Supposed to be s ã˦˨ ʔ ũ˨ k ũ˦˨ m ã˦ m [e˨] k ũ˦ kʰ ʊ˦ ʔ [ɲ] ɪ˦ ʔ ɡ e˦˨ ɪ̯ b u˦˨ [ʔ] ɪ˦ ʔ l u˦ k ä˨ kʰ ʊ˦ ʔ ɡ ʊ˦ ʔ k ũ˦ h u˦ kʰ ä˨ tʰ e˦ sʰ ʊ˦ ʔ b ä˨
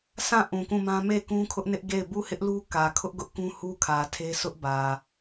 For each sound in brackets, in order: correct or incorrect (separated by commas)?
incorrect, incorrect, incorrect